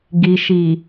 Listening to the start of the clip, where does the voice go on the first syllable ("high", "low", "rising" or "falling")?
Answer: low